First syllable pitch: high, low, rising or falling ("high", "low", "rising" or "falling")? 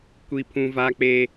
high